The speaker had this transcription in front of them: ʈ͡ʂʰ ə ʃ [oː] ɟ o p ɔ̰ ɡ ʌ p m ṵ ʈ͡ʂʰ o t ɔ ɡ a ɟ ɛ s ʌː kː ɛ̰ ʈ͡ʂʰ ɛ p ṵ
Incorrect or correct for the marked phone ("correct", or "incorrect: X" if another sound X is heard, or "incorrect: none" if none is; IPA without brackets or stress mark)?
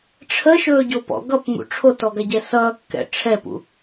incorrect: ɵː